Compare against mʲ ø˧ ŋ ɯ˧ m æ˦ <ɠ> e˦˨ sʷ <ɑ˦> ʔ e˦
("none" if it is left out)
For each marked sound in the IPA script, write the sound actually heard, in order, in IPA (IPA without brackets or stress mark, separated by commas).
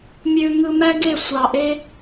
ɡ, ɑ˨